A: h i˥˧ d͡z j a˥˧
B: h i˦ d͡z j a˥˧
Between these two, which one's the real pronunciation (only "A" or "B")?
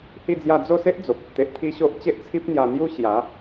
A